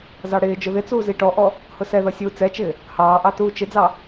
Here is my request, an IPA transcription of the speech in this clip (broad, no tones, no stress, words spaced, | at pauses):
zɑɽɪːd͡ʒʊ ðɪt͡suː ziʈɔʔɔ | hʊsɛðʌ sʲuːt͡sɛt͡ʃɪː | hɑːʔɑ tuːt͡ʃɪd͡zɑ